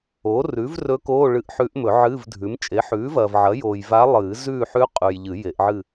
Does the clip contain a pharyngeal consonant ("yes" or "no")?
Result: yes